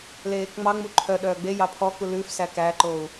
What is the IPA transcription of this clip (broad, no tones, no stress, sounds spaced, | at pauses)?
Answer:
l eː k ŋ͡m ɑ ŋ͡m u ǃʰ œ ɗ œː ɡ͡b e j ɑ pʰ ɔ k u l ʉ f s æ k æ ǃ oː u̯